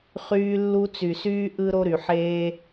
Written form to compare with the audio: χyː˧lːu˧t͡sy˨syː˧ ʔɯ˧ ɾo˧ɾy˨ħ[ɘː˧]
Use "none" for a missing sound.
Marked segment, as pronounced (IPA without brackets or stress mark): eː˧